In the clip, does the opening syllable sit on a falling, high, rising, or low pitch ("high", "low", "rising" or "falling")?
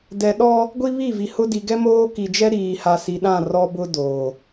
low